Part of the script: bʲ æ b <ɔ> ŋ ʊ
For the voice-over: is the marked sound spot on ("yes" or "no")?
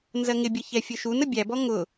yes